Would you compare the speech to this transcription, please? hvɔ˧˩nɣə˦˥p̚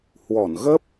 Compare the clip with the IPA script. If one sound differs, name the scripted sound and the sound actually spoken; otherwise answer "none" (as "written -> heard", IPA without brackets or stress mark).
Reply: v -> w